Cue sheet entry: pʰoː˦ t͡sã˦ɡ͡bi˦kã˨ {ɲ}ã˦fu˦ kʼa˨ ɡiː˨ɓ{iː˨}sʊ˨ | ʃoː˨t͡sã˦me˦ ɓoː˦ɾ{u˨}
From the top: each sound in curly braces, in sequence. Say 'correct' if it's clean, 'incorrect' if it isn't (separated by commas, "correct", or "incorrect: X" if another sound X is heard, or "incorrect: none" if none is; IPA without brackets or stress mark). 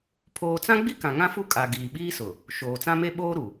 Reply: incorrect: ŋ, incorrect: iː˦, correct